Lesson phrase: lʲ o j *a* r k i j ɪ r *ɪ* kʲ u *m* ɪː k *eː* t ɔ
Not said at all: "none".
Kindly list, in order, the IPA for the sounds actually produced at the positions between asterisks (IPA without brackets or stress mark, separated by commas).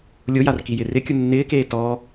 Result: a, ɪ, nː, eː